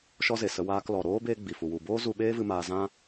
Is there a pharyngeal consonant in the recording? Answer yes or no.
no